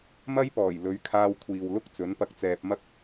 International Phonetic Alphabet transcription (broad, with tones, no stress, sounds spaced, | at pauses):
m ɐ˥ j p ɔː˨˩ j l ɵ˨˥ ɥ kʰ aː˧ w kʷʰ iː˨ w l ʊ˥ k̚ t͡s ɵ˨˥ n p ɐ˧ k̚ t͡s ɛː˧ p̚ m ɐ˥ k̚